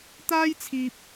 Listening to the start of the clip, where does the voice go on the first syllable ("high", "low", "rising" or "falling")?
high